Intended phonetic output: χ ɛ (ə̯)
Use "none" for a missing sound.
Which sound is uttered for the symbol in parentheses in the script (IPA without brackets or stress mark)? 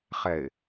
ɪ̯